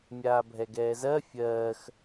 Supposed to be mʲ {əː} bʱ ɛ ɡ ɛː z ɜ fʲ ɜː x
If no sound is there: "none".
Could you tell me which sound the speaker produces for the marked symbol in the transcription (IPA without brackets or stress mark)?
aː